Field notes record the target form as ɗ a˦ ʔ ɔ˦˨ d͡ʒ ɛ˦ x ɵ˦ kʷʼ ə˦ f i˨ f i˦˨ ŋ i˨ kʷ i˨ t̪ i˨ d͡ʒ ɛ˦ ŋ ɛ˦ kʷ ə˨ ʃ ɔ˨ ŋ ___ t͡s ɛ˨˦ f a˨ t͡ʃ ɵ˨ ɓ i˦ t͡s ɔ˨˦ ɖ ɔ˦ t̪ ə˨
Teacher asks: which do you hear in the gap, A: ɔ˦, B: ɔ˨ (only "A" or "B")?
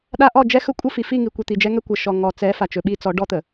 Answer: B